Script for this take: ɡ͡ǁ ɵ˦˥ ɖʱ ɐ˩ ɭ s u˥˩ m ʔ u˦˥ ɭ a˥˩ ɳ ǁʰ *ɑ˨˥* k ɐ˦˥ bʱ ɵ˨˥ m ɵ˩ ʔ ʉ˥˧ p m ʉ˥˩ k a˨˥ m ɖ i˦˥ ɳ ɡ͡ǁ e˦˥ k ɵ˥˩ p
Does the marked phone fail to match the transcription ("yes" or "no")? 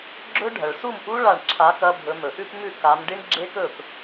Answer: yes